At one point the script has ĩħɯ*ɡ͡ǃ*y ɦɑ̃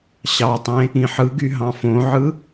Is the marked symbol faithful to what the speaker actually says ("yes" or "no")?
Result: no